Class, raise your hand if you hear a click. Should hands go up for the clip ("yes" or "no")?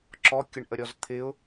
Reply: yes